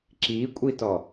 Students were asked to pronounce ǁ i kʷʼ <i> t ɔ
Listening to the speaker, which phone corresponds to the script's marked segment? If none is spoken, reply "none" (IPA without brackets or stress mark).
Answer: i